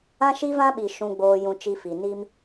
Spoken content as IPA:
ã˦ʃi˦vã˦ɓi˨ ʃũ˨ɡ͡boː˨ jũ˨t͡ʃi˨ fi˨ ni˦m

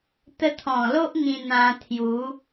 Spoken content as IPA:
t̪ə˧t̪ʰɔ̃˨˩lo˦ʔ ŋĩ˧ n̪ã˧t̪ʰju˨˦

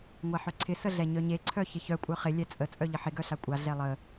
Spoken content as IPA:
ŋʷaħœǀʰɪ səɮɛɲœɲe ǀʰœçɪçœ kʷʼœχɪ lʲɛt͡sʼə t͡sʼœʎəħɪ ɡœɬakʷʼa ɮɛlˠə

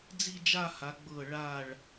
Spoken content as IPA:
d͡zi˥˧d͡ʒa˥˧ha˩˧ ɡ͡bɤ˧˩ɭa˧˩ɭ

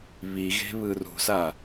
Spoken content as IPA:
βiɣe̤βɯ rṳsa

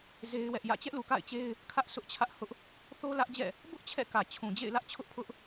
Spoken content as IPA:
ze˦ɪ̯wɛ˦ʔjä̰˦˨ t͡ɕɛ˦ʔlu˨ka̰˦˨ɪ̯t͡ɕe˦ɪ̯ | kʰä˦ʔsʰʊ˦ʔt͡ɕʰä˦ʔ hʊ˦ʔ | θo˦lä˦ʔd͡ʑɛ̰˦˨ | bʊ˦ʔ t͡ɕʰɛ̰˦˨kä˨t͡ɕʰũ˨ d͡ʑḛ˦˨ɪ̯lä˦ʔt͡ɕʰʊ˦ʔpʰʊ˦ʔ

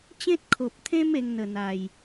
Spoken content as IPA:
t͡ɕẽ˦t̚kʰo˨p̚t̪ʰẽ˦m e˧ŋn̪ə˨˩n̪a˨˩j

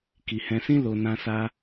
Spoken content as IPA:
ki˨hɛ̃˧sĩ˦ lo˧ nã˧ sa˦

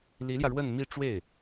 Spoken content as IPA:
li˧˥ljä˧ ɻwə˥˧nmi˥˧ʈ͡ʂwe˥˩ɪ̯

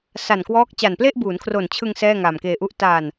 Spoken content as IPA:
sa˨˩nkwɔː˦˥k̚ t͡ɕa˨˩nple˥˩ʔbuː˩˦nkʰro˨˩n t͡ɕʰɯ˧ŋ sɛː˥˩ŋa˨˩mkeː˧ʔu˥˩ʔ ta˧n

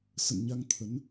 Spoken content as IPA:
sə̰˧˨nɲa˧ŋt̪ʰə˨˦n

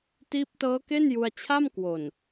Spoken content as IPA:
tiː˦˥p̚tɤː˦˥ke˥˩n ju˧a̯ t͡ɕʰa˥˩mkwo˨˩n

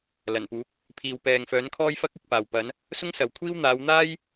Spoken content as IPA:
lɐ˨˩npuː˨˥k̚ | pʰiː˨wpɛː˨ŋfœː˨˥n kʰɔː˥jfɐ˥k̚ ɪ˧k̚paː˨w pɐ˨˧n | sʊ˥ŋsɐ˨wkʷʰiː˥w n̪aː˨˧wn̪aː˥j

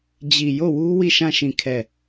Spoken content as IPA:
d͡ʑi˨jo˦˨wu˦ wi˦˨ʃã˦˨ ʃĩ˦˨kʰɛ˦˨

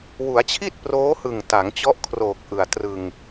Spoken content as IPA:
wu˩˦a̯t͡ɕʰi˥˩t̚ proː˦˥hɯ˨˩ŋta˩˦ŋ t͡ɕɔ˦˥ʔkʰroː˨˩k̚ ʔɯ˨˩a̯trɯ˧ŋ

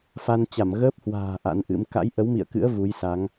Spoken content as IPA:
fa˧nt͡ɕa˧˩m ɣəː˦˥p̚hwa̤ː˨˩ ʔa̰˧˥nʔɨ̰˧˥m ka̰˧˥jʔə˨˦wmḭ˧˨ə̯kɨ̰˧˥ə̯ vu˨˦jsa˨˦ŋ

